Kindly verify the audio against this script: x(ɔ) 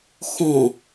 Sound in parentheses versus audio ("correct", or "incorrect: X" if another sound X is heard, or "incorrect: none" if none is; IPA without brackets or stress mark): incorrect: ɔ̃